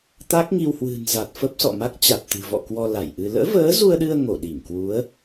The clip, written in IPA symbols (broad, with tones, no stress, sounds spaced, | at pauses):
t̪ a˦˥ k̚ ŋ i˧ w h w ɨ̤˨˩ n z a˨˩ t̚ f ə˦˥ p̚ s ɔ̰˧˨ m a˦˥ k̚ t͡ɕ a˨˩ t̚ t̪ ɨ̤˨˩ v ɔ̰˧˨ k w ɔ˧ l a˧˩ j ʔ ɨ˧ l ə̰ː˧˥ v əː˨˦ z u˧ ə̯ ɗ ɨ˧ ə̯ ŋ o˧˩ ɗ i˧˩ ŋ k w u˨˦ ə̯